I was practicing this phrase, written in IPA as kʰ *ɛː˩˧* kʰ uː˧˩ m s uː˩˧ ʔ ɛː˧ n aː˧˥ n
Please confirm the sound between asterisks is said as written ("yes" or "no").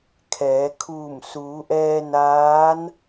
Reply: yes